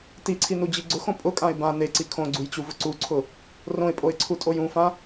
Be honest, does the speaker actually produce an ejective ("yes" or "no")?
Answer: yes